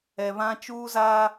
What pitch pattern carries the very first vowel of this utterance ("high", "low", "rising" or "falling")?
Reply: low